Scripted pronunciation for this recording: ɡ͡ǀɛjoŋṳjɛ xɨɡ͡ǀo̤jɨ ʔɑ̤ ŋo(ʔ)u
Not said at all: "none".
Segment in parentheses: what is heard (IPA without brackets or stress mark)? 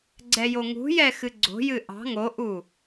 ʔ